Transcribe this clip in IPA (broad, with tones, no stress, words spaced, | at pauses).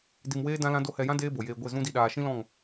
di˧mweː˦ dã˦lã˦do˦ hɛ˧jã˦ deː˦bo˨jeː˧ ɡʷe˦˨zũ˦di˧ ɗaː˨ʃĩ˦lɔ̃˦˨ŋ